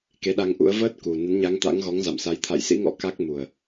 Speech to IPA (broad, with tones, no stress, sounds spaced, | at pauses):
k e˨˦ ɗ a˧ ŋ ʔ ṵ˧˥ ə̯ v əː˦˥ t̚ k u˨˩ n ə˨˦ n ɲ a˨˦ ŋ t̪ a̰˧˥ ŋ ɣ ɔ˨˦ ŋ z a̰˧˨ m s a˨˦ j t̪ʰ a̰˧˨ j s ḭ˧˥ ŋ ɔ̰˧˥ k a˦˥ k̚ m u˨˩ ə̯